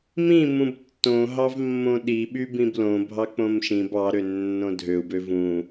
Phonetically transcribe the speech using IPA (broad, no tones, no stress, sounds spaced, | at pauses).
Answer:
m ĩ m ũ b tː õ ɦ ɑ v mː õ ɗ i ɓ y b ĩ b l õ bʱ ɑ k͡p õ m ʃ ĩ b ɑ ɾ ø nː õ dʱ ø u̯ b ø v ũ